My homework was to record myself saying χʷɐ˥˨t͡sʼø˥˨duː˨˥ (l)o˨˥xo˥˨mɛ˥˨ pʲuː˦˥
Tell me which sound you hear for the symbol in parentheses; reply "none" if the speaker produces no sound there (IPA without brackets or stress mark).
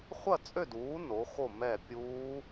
n